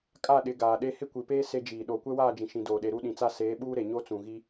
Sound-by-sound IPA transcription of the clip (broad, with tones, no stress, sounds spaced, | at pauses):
kʼ a˦˨ ɗ ɪ˨˦ ɡ aː˨ ɗ e˦ h ɪ˦ kʷ i˨ p eː˦ s e˦ d͡ʒ iː˨ ɗ oː˨ kʷ ɛ˦ w aː˦˨ d͡ʒ ĩ˨ ʃ ĩ˨ d oː˨ ɗ e˨ ɾ u˦ ɗ ĩ˨ t͡s a˦ s eː˨˦ ɓ uː˦ ɾ e˨ ɲ o˦ t͡s ũ˨ ɣ i˦